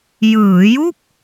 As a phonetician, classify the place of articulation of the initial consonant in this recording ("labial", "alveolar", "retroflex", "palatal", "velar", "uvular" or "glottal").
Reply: palatal